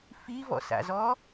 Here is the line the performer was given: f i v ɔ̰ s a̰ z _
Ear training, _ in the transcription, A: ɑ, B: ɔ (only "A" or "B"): B